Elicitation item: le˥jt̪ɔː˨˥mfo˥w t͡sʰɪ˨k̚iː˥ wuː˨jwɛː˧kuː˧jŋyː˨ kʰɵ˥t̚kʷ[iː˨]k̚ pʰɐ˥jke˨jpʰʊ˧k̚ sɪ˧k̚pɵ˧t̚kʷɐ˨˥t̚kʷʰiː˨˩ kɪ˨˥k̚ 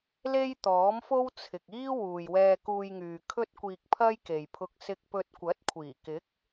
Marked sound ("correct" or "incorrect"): incorrect